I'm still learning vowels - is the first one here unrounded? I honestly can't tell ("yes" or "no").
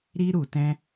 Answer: yes